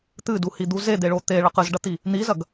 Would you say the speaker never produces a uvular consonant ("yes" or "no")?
no